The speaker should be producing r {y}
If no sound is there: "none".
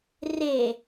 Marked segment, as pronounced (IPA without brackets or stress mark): e